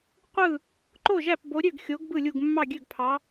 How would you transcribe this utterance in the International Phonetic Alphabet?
qʷɯ˥˨ | ǃo˥˨ʒæ˥˨pbo˨˦ɾʲø˥˨ɡ xʲo˨˦ɡ bɯ˥˨lʲu˥˨ɡmːɑ˥˨ ɡʲø˥˨ɡpʰɑ˨˦

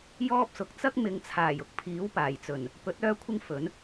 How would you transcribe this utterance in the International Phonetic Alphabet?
jɔː˥p̚sʊ˨˥k̚ t͡sɐ˥k̚mɪ˨˧ŋt͡sʰaː˨˩j ʊ˥k̚pʰiː˨˥wpaː˨˩jt͡sɵ˨˩n | pɵ˨˥t̚ œː˥ kʷʰɪ˥ŋ fɵ˨˥n

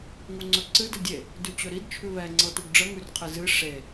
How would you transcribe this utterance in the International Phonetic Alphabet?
ŋuŋ͡ǀɵǀɨ dədʲe | dʉt͡ɕɵɾid t͡ʃʰʉβɛ ŋ͡ǀɤtuɡɖ͡ʐə ŋʉrqʰɨzɨ ʂe

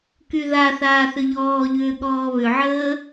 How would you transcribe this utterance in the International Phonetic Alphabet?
kyðaθaː θʏʎɔːʎʏː ɠɔːβʏʕəː

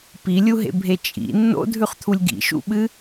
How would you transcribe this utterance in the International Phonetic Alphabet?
pilʲuɦḛbʱe t͡ʃʼḭ nːo̰dʱʉχt̪ʰulʲ ɡḭʃṵɓɨ

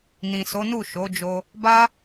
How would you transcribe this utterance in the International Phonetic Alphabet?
nĩ˨so˨˦ nu˦˨ʃo˨˦d͡ʒo˧ | ba˦

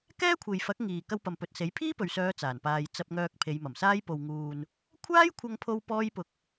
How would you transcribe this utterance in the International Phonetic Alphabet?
kɛː˥kʷʰe˨jfɐ˨˥k̚ ŋiː˨ kɐ˧wpɐ˨mpɵ˨t̚se˨˥j pʰiː˥pɵ˨ɥsœː˨˧ t͡saː˨˩npaː˧j t͡sɐ˧p̚ŋœː˧k̚ pʰe˨˧jmɐ˨˩msaː˥j po˨wŋuː˨n | kʷʰaː˥jkʷʰɐ˧ŋpʰo˧w pɔː˥jpʊ˧k̚

